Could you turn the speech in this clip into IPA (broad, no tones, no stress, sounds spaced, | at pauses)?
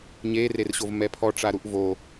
ɲ e r e r ɕ o v m ɛ pʰ ɔ ʈ͡ʂ a ɾ u ʔ v o